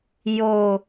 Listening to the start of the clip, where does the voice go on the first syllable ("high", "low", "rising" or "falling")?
low